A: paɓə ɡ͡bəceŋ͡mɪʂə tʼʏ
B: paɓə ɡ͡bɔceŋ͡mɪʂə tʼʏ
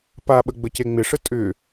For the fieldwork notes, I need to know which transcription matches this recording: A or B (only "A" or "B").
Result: A